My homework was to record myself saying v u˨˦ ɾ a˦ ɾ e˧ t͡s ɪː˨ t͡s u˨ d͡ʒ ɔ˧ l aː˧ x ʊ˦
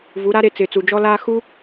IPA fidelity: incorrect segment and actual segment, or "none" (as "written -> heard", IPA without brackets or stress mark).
ʊ˦ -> u˦